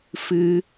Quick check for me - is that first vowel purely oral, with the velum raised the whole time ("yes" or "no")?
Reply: yes